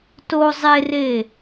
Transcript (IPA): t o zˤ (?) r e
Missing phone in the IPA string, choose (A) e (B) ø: A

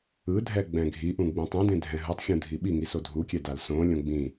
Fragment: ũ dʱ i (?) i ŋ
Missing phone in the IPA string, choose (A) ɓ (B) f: A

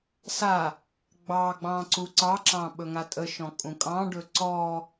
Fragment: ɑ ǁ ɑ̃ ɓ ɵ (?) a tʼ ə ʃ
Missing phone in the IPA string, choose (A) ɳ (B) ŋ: B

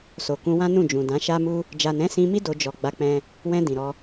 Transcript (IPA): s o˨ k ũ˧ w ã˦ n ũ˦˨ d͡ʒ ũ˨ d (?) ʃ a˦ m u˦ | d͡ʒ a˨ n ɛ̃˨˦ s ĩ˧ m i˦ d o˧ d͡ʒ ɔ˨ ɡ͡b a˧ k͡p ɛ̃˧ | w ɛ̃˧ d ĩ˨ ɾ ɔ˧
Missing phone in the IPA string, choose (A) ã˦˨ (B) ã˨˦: B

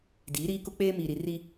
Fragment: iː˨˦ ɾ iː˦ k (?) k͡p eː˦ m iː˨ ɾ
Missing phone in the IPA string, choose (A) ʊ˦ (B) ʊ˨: A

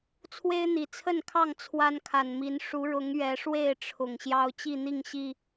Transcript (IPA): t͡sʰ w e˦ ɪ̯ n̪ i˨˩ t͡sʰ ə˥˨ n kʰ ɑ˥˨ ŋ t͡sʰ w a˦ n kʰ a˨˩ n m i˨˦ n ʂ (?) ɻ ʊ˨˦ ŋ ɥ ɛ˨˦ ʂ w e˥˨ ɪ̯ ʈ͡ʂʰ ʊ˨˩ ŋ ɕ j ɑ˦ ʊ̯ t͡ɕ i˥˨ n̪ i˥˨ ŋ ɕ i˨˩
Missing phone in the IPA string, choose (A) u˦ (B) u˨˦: B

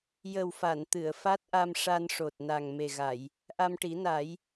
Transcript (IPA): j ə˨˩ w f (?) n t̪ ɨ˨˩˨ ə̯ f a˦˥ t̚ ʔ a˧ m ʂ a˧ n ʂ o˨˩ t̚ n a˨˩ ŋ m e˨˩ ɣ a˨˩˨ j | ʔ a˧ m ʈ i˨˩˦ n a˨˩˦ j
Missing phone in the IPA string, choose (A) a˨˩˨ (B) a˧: A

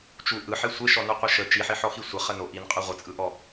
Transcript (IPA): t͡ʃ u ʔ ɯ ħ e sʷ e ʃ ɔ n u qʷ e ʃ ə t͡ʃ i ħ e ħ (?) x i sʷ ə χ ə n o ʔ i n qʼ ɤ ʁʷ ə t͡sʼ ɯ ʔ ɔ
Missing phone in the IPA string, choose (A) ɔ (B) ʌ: A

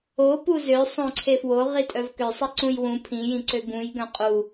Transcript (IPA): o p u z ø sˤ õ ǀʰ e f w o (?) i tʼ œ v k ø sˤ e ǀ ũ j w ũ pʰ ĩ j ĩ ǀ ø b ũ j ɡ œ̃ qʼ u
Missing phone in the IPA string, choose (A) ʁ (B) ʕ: A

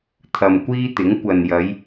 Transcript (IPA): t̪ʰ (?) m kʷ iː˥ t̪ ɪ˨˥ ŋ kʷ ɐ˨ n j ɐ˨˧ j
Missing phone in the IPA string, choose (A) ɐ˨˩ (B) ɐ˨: B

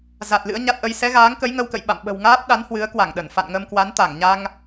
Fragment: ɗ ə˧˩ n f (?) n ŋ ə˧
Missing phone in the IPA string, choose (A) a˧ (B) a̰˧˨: B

